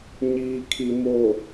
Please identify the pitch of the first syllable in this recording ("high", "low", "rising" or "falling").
low